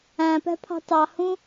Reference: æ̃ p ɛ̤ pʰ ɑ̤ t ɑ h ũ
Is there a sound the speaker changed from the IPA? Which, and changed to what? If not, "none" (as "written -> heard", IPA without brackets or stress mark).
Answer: none